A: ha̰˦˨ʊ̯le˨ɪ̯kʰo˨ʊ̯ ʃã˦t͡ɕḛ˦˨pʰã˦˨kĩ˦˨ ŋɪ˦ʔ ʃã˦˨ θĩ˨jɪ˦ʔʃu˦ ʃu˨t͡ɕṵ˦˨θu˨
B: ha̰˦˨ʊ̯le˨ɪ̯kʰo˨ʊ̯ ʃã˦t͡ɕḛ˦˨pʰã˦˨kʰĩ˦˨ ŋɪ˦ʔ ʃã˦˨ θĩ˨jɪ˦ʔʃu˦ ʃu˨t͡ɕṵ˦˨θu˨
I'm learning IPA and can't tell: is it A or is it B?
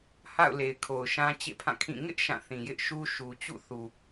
B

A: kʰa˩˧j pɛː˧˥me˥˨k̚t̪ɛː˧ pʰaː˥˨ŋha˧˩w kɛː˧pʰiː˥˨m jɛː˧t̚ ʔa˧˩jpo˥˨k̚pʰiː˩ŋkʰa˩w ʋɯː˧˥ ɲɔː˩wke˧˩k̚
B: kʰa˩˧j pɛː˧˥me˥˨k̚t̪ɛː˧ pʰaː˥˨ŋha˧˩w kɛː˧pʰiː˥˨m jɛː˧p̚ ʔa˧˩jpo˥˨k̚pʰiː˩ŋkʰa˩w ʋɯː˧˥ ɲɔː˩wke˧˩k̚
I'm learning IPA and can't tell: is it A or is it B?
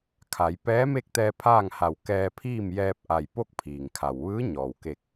B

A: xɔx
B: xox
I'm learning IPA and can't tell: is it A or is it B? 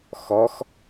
A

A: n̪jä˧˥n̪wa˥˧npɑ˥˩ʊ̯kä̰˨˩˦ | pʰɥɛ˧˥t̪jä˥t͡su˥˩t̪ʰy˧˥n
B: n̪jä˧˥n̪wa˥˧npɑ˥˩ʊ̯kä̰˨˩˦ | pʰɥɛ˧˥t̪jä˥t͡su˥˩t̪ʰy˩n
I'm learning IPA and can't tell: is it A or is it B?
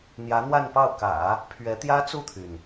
B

